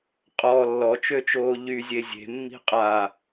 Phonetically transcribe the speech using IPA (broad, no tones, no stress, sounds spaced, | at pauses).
qʼ ɔ lː ɔ t͡ʃ ø t͡ʃ oː ʎ y zʲ e zʲ e̤ mː i̤ qʼ a